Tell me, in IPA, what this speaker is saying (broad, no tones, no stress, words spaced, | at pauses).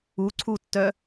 uǀʰutːœ